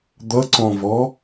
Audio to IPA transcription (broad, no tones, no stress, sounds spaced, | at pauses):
d̪ ʌ ǀ ɔ̃ v ɔ